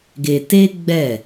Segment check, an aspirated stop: absent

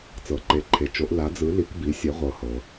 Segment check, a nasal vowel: absent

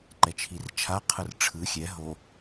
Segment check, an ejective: absent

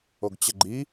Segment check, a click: present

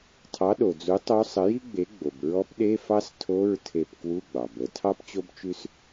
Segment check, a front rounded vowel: absent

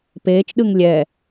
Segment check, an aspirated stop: absent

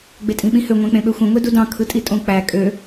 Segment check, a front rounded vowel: present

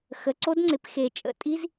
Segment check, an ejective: present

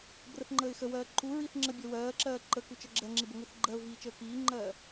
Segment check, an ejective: absent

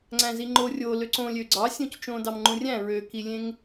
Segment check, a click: present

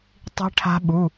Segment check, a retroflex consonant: present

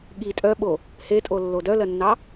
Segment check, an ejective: present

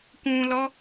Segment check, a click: absent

